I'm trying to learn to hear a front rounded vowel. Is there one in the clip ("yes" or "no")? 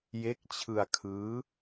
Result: no